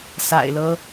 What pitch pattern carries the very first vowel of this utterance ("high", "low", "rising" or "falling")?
low